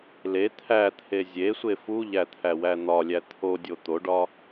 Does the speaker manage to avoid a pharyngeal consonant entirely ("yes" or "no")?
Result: yes